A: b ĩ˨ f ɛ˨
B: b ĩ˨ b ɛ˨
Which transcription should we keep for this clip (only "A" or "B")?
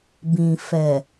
A